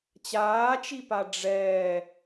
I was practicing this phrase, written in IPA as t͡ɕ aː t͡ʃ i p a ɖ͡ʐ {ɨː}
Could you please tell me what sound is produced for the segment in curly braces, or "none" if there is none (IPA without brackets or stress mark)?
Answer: ɛː